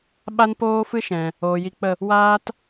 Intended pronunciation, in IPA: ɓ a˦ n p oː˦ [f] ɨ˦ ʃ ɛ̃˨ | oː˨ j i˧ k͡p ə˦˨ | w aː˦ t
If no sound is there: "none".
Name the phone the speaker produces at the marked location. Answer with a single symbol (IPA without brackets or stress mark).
f